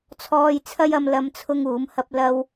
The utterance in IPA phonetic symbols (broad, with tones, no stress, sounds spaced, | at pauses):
t͡sʰ ɔː˧ j t͡sʰ ɐ˥ j ɐ˧ m l ɐ˥ m t͡sʰ ʊ˥ ŋ uː˨˥ m h ɐ˧ p̚ l ɐ˧ w